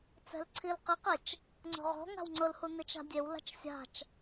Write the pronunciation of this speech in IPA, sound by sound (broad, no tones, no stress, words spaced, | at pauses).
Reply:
t͡sɛ̤lǀʰilqɪqet͡ʃ | ŋ͡ǀɔ̤ʁɔ̤ ŋa̤wŋ͡ǀʊlhu nit͡ʃa̤dʲewla̤t͡ʃ sʲa̤t͡ʃ